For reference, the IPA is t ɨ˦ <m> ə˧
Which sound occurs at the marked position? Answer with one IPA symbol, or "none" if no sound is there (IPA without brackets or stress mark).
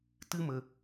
m